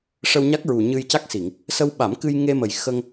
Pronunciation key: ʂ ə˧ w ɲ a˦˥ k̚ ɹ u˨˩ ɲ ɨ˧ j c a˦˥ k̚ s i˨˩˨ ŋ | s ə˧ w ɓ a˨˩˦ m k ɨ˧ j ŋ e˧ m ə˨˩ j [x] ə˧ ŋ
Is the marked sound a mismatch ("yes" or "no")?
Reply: no